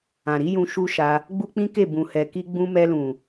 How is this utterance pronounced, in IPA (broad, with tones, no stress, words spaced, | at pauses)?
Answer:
ã˨ɾi˨˦jũ˧ ʃu˦ʃa˧ | ɡ͡bu˦k͡pĩ˦ke˦˨ bũ˨hɛ˨ ki˧ɡ͡bũ˧ mɛ˧lũ˨